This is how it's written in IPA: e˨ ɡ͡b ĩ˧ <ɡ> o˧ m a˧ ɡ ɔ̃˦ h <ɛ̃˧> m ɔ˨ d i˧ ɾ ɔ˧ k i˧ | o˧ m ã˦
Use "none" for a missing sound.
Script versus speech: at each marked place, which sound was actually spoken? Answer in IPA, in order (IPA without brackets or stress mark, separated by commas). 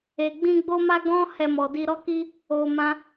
ɡ͡b, ɛ˧